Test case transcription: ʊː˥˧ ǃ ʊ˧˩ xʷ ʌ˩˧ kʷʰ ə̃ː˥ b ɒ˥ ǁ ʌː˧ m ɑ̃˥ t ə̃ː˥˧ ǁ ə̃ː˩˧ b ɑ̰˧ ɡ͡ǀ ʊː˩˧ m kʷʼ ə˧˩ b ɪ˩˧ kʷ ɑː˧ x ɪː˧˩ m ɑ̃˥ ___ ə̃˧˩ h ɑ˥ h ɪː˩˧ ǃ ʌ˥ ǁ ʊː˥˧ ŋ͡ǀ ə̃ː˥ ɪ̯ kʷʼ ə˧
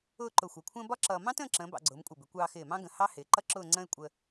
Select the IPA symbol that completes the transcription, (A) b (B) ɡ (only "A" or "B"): B